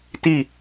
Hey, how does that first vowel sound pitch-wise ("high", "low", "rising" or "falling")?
falling